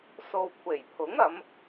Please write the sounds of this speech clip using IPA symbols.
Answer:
so˨wkʷʰe˨˩jpʰʊ˨˥ŋɐ˨˧m

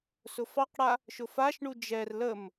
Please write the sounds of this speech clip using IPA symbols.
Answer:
sʊfɑqɽa | ʃʊfaʃɳu d͡ʒɛr ləm

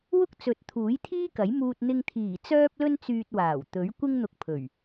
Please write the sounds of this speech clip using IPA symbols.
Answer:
wʊ˥k̚t͡sɵ˨˥t̚ t̪ʰuː˨˥jt̪ʰiː˥kɐ˨˥jmuː˧t̚ n̪ɪ˧ŋt̪ʰiː˨˩ t͡sœː˥p̚lɵ˥nt͡syː˧t̚waː˨˩w t̪ɵ˨˥ɥ kʷɪ˥ŋn̪ʊ˧k̚pʰɵ˨˩ɥ

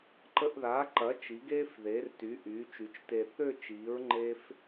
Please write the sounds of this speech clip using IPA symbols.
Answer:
ǃə˧ʔðaː˩˥ǃɐ˩˥ t͡ʃi˩˥ɡeː˥fðeː˩˥rty˩˥ ʔyː˩˥t͡ʃy˩˥t͡ʃte˧ θø˥˧t͡ʃiː˩˥ɹ ŋ͡ǃe˥f

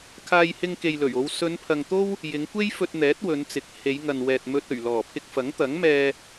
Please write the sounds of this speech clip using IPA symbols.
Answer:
kʰaː˧jhɪ˧ŋke˨j lɵ˨˩ɥo˨˧w sɵ˨˧npʰɐ˨ŋ t̪o˥w | jɪ˨˧ŋkʷe˥jfɵ˧t̚n̪ɛː˨˥t̚ wɵ˨˧nt͡sɪ˨˥k̚ he˨˧jŋɐ˨nwɛː˨t̚ mɵ˧t̚ ɵ˨˩ɥlɔː˨˩pʰɪ˧k̚ fɐ˨˥ŋt̪ɐ˨˥ŋmɛː˧

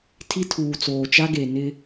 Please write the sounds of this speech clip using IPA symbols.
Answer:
tʰi˦tʰuː˨t͡soː˨t͡ʃa˦ ɡe˨nɪ˦

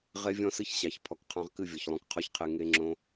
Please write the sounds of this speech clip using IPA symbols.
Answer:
ʁe˦vʲɔ̃˦sɨ˦çɕɑ˨ç pʰɔ˨kqʰɑ̃˧ʁkɨ˦˨vʲɔ˨ç lˠõ˧k qʰɔ˦çqʰe˧ ŋe˧ŋ͡ǁõ˧

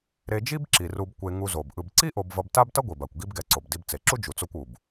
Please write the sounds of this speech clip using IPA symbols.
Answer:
ɾe˨d͡ʒi˦b ǁi˩ru˨b kʷe˨ ŋu˨zo˩bʔɯ˨bǀi˥ ʔo˨bvʌ˨bta˦b tʌ˥ɡʷi˩ba˩kʷ ɡi˦bɡɛ˨ǀo˩b di˨bt͡se˩ǁu˦ d͡ʒu˨t͡so˦kʷ u˩b

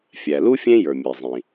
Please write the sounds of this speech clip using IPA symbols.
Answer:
fʲæ˩lu˥ fʲẽ˥ jə˞˩mʲɛ˩ zˤĩ˩

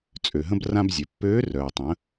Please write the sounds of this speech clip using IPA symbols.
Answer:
t͡sʼø˩ɦə̃˧b rã˧bzʲœ˩pːøː˧˥ rœː˩tˤə̃˩˧

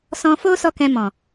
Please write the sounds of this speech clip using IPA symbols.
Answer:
sɔ̃˧ fo˦sɔ˧ kɛ̃˧mɔ̃˨

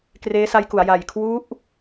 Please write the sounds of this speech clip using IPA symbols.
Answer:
kreː˦˥sa˦˥jku˩˦a̯ ja˨˩jkʰwu˦˥ʔ

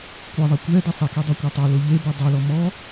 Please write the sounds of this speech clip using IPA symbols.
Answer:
kʷeðˤɛ kʷɛ desˤɛkɛ dˤakʷatˤalo ʎe bedˤolɔ mɔ

